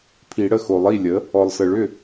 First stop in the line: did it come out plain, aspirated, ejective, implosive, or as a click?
aspirated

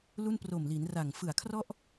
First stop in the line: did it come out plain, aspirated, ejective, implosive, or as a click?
plain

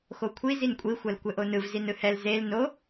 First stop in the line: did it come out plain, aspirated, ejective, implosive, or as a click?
aspirated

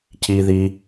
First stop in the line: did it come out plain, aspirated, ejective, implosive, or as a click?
aspirated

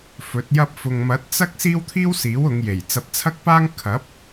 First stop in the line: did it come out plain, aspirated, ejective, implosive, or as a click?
plain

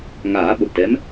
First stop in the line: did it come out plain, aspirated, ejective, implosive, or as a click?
implosive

